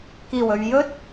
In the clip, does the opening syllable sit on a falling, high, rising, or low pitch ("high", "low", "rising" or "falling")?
low